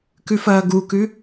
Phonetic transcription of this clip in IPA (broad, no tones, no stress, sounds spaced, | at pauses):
k ʉ f ɐː ɡ u k ʉ